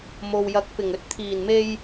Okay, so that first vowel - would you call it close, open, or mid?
mid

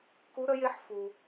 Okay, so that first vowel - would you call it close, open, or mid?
close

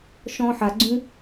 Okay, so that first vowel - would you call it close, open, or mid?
mid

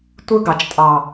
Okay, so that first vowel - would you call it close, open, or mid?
close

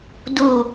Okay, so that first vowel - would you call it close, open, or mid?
close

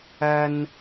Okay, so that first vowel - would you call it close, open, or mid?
open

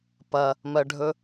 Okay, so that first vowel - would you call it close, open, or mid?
open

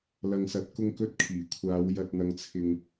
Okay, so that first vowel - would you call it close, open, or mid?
open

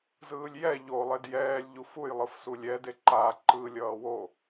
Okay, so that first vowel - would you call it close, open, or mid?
close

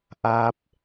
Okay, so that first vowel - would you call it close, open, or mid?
open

